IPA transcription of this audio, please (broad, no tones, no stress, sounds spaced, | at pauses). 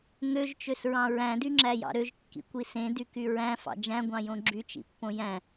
ŋ ø ʒ t͡ʃ ø s ɹ ɑ̃ ɹ æ̃ d y ŋ͡ǁ æ j ɑ̰ ɾ ø ʒ kː ḭ kʷ i s ẽ d y k y ɹ æ̃ f ɑ̰ d͡ʒ æ̃ ɡʷ ɑ̃ j õ ɡ͡ǁ y t͡ʃ ḭ pː õ j æ̃